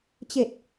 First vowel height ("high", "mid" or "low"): mid